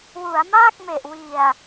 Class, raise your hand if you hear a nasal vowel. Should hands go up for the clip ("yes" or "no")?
no